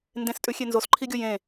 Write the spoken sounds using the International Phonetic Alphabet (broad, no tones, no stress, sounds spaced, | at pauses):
n d ẽ s tʼ ʉ xʲ e n z o s ǃʰ i ɡʲ o j ẽ